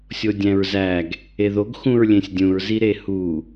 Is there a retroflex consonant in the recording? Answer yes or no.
no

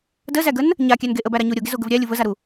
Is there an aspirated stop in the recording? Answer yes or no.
no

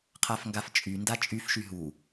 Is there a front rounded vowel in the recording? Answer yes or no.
yes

